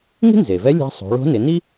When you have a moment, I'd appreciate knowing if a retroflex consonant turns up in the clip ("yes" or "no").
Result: yes